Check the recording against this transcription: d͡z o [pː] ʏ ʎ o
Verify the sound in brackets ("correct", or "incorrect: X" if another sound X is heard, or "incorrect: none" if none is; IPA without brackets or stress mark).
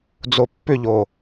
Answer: correct